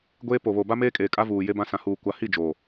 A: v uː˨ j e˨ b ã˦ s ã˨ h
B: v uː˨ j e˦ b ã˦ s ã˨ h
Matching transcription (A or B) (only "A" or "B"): B